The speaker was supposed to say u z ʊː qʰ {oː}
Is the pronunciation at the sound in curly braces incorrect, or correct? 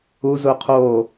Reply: correct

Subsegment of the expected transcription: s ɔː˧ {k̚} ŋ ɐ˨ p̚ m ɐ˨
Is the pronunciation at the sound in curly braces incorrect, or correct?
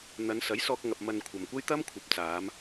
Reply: correct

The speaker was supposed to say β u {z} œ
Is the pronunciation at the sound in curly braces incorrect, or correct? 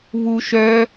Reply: incorrect: ʃ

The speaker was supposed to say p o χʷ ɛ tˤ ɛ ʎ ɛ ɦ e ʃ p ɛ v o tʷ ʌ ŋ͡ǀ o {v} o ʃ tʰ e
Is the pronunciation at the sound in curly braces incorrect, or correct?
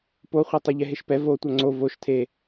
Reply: correct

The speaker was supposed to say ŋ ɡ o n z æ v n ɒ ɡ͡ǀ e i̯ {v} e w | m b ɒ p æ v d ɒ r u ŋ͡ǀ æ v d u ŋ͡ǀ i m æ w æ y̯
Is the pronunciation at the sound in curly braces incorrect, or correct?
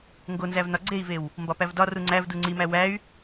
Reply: correct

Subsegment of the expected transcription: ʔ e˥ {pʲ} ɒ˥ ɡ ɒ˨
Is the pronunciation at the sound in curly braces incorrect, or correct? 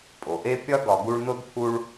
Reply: correct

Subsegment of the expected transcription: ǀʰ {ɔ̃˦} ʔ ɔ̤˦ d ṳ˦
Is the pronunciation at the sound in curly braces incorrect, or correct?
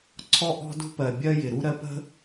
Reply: incorrect: ɔ˦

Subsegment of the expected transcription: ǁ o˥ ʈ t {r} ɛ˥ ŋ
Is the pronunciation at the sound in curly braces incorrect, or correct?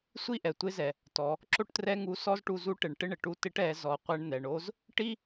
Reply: correct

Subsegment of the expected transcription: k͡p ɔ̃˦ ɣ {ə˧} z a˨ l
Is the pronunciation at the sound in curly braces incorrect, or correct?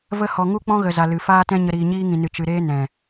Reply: incorrect: ə˨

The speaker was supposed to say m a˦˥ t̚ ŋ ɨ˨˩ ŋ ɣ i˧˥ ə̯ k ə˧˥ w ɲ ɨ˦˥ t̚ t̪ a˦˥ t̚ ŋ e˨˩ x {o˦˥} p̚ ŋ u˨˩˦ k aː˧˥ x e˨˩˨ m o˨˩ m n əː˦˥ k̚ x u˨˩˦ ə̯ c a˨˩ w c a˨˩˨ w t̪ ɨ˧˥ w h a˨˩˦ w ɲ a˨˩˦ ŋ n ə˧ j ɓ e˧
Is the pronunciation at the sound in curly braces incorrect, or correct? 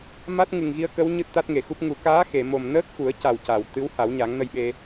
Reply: incorrect: u˦˥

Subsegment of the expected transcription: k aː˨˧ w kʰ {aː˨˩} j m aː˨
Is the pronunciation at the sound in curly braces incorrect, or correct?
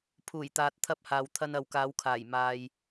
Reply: correct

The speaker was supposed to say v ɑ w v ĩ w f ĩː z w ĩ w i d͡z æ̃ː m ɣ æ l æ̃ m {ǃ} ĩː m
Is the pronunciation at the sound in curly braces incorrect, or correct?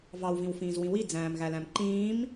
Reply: correct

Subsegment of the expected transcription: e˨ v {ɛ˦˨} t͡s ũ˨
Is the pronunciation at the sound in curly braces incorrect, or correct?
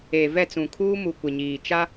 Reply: correct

